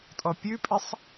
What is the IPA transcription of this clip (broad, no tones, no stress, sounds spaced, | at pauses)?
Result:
tʼ ɔ pʲ ʉ pʼ e sˤ